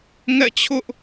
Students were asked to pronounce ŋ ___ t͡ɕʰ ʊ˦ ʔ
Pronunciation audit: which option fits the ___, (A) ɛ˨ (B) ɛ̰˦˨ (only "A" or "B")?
B